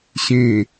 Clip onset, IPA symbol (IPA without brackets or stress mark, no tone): ɕ